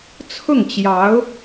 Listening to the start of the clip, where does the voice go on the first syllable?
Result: falling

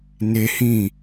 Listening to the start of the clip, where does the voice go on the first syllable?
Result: high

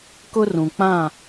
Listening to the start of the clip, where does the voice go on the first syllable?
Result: high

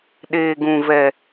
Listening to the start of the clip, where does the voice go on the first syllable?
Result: low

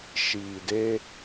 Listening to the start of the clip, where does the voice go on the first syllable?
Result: low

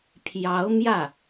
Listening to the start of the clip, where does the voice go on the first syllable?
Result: rising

